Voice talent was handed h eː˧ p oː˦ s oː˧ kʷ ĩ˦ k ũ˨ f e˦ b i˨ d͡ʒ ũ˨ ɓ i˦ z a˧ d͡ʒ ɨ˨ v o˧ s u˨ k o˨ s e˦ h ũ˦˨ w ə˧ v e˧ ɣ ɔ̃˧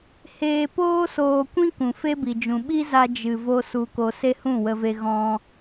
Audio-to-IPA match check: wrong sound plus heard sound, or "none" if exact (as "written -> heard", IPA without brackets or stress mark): none